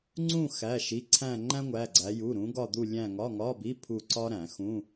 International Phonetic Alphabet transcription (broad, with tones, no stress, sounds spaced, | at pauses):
ŋ͡ǀ ũ˦˨ x æ˩˧˩ ʃ i˩˧˩ ǀʰ æ̃˦˨ ŋ͡ǃ æ̃˥ ŋʷ æ˩˧˩ ɡ͡ǀ æ˨˦ j u˩˧˩ ɾ ũ˨˦ ɡ ɒ˦˨ d̪ u˦˨ lʲ æ̃˦˨ ŋ ɒ˧˥˧ ŋ ɒ˧˥˧ b i˧˥˧ pʰ u˦˨ ǀ ɒ˥ ɾ æ̃˨˩˦ x ũ˧˥˧